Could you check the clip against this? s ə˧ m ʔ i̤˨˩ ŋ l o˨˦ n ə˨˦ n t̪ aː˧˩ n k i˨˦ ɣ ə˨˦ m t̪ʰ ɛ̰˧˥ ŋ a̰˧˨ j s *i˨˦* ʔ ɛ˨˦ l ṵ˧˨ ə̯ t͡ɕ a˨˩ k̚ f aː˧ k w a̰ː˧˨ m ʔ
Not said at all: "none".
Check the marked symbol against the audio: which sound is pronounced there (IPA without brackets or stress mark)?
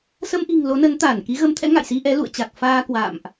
i˧